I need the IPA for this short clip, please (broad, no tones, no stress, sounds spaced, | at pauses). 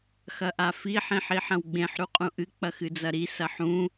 x ɐ ʔ a f i ħ ĩ ħ i ħ ɐ̃ w ɡ͡b ẽ ħ ɾ u qʼ ũ ʔ ɨ k͡p ɐ x ɨ d͡z ɐ ɾ i s ɐ ħ ũ